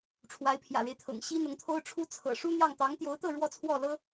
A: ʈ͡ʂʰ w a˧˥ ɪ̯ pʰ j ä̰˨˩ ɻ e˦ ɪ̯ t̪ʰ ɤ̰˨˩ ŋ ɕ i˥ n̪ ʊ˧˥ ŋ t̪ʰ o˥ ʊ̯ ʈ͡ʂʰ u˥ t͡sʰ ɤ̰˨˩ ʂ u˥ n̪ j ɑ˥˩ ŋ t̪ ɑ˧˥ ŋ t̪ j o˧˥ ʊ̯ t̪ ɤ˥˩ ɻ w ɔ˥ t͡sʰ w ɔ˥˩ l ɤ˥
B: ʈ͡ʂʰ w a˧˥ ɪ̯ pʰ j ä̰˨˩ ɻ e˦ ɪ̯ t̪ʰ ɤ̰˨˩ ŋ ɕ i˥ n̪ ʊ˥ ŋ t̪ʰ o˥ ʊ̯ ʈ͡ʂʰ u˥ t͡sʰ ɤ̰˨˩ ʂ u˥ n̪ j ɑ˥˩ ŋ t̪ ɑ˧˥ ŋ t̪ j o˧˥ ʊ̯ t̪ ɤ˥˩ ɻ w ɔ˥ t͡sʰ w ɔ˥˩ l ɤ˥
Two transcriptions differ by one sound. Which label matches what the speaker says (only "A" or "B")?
A